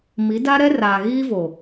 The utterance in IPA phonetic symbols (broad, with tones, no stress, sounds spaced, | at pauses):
m i˨˦ d a˦ ɾ ɛ˦ r aː˨ ɣ iː˦ v o˨